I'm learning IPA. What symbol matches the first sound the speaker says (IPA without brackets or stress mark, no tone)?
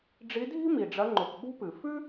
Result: ɖ͡ʐ